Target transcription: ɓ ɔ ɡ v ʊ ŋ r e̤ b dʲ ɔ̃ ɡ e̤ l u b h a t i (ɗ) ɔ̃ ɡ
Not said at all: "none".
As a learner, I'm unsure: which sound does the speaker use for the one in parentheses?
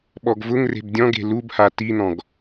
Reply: n̪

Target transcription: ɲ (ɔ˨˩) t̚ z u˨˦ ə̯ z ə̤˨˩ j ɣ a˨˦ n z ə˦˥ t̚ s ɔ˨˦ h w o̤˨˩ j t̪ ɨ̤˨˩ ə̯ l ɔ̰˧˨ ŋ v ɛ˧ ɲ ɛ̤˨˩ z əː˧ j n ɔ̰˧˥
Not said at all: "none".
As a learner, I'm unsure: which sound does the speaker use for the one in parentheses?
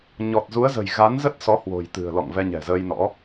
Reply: ɔ˨˩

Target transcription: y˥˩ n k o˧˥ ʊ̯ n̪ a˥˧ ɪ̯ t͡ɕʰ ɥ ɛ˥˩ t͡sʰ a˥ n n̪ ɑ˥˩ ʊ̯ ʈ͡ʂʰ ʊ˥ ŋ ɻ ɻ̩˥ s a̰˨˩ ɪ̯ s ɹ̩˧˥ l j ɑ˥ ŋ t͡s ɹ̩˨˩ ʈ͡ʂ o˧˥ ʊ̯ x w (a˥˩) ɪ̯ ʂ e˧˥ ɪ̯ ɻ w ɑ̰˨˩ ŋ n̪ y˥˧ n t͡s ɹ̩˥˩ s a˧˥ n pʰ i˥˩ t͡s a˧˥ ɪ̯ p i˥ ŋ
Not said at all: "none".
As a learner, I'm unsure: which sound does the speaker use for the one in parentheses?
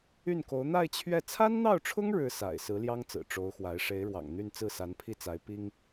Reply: a˧˥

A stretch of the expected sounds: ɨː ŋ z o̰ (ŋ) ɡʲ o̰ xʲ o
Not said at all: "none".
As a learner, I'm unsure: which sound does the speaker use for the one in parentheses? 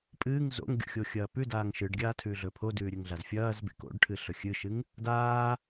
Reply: ŋ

